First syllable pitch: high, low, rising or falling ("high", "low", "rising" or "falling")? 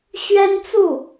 high